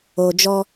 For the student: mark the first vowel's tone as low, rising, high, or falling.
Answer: low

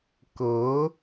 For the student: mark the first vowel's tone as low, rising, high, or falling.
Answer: rising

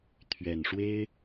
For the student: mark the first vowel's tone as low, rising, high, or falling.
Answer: low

